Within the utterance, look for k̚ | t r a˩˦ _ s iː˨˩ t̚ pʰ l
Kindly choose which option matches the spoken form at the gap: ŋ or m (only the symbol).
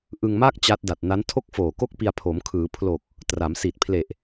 m